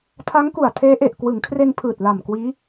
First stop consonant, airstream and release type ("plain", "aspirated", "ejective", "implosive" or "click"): aspirated